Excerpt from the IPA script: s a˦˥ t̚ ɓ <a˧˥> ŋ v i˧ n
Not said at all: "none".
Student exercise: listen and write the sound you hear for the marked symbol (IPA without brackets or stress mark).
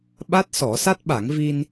a˨˩˦